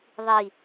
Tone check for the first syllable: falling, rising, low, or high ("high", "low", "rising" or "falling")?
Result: low